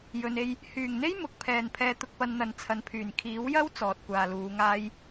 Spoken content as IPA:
j ɵ˨ n e˧ j | h yː˨˩ ŋ n̪ e˥ j m ʊ˨˥ k̚ pʰ ɛː˧ n pʰ ɛː˧ t̪ ʊ˧ k̚ p ɐ˧ n n̪ ɐ˨ n t͡sʰ ɐ˨ n pʰ yː˨˩ n kʰ iː˨˥ w j ɐ˥ w t͡s ɔː˨ t̚ kʷ aː˨ l uː˨˧ ŋ aː˥ j

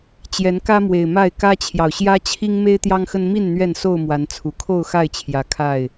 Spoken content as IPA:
t͡ɕ j ɛ˨˦ n k ä˦ m w e˨˩ ɪ̯ m a˥˨ ɪ̯ k ä˦ t͡ɕʰ j ɑ˨ ʊ̯ ɕ j ä˦ t͡ɕʰ i˦ ŋ m e˦ ɪ̯ t̪ j ɑ˦ ŋ x ə˦ n m i˥˨ n n̪ ɥ ɛ˥˨ n s o˥˨ ʊ̯ m w a˨˦ n t͡sʰ u˨˩ kʰ o˥˨ ʊ̯ x a˥˨ ɪ̯ t͡ɕʰ j ä˨˦ kʰ a˥˨ ɪ̯

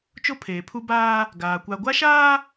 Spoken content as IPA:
t͡ʃ o˦ pʰ eː˨ pʰ u˦ b aː˦ | ɡ aː˨ kʷ a˨ ɡʷ a˦ ʃ aː˦

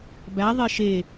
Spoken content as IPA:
b æ ðˤ e ʃ e

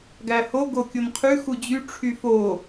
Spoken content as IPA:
ɡ æ h o ɡ o kʲ o n qʰ ʉ x u d͡ʑ y ʈ͡ʂʰ y f o

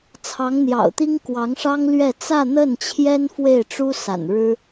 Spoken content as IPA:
t͡sʰ ɑ˧˥ ŋ n̪ j ɑ̰˨˩ ʊ̯ t̪ i˥ ŋ k w ɑ˧˥ ŋ ʂ ɑ˥ ŋ l ɥ ɛ˥˧ t͡s ä˥˧ n̪ ə˥˩ n t͡ɕʰ j ɛ˥ n f w e˥˩ ɪ̯ ʈ͡ʂ u˥ s a̰˨˩ n ɻ ɻ̩˥

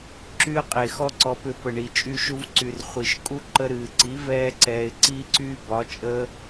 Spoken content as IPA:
ǁ y˦ ə̯ qʼ e˨ x ɔ˦ ǀ ɔ˧ p ʏ˧ p ə˨ ɳ i˨ t͡ʃʼ y˧ ʃ u˧ v ǀ y˨ r χʷ i˨ ʃ kʼ u˦ ǃ ə˧ ɾ ɨː˨ ǀ i˨˦ v ɛː˧ ǀ ɛː˨ ɪ̯ ǀ iː˦ ǀ yː˦ b ɒ˨˦ t͡ʃʼ əː˦

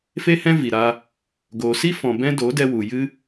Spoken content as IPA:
f e˦ h ɛ̃˦ v i˨ ɾ a˧ | ɡ oː˨ s i˦ f ɔ̃˨ b ɛ̃˦ d o˨˦ d ɛ˧ w u˨ j ɨ˧

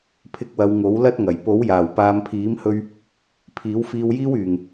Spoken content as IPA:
pʰ ɪ˧ k̚ w ɐ˨˧ w ŋ o˨˥ w l ɐ˥ t̚ ŋ ɐ˨˩ j p o˨˥ w j aː˨˩ w p aː˨˧ m pʰ iː˨˥ m h ɵ˧ ɥ | pʰ iː˨˥ w f iː˧ w j iː˥ w yː˨˩ ŋ

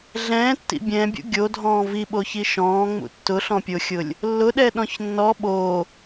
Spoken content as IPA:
ɮ ɛ̃ː tː ḭ bʲ ɛ̃ bʲ ṵ ɡʲ o dʱ ɔ̃ː v i ɓ o ç i ʃ ɔ̃ː ŋ͡m ṵ tː ʊ ɬ ɔ̃ pʲ o xʲ ʊ lʲ | lː ʊ ɗ ɛ ɗ ɔ̃ ç nː ɔ ɓ o

